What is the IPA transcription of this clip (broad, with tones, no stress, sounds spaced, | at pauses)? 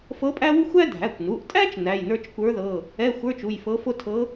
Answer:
f ɤ˧˥ pʼ æ˥ w u˥ xʷ æ˥ dʱ æ˩˧˩ kʷ n u˩˧˩ ʔ tʼ æ˥ t͡ʃ n æ˩˧˩ j n ə˞˥ t͡ʃ kʷ ə˞˧˥ ð ɤ˩˧˩ | ɛ˧˥˧ xʷ ə˞˧˥˧ t͡ʃ u˩˧˩ j f ɤ˧˥ f o˥ tʰ ɤ˧˥